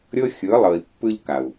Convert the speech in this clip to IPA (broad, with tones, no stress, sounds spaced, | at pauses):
ɾʲ ɤ˦ xʲ ɯ˨˦ lˠ ɤ˨ i̯ pː ɯ˦ ʎ k a˨ u̯